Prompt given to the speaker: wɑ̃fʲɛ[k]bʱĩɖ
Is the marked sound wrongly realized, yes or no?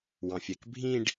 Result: no